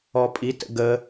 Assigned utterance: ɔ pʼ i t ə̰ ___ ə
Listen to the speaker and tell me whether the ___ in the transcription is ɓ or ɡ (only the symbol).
ɡ